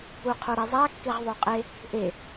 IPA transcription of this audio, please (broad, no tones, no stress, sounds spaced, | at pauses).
u qʰ o ɾ ɛ zˤ a kː e ʁ ðˤ o qʼ e | ʔ e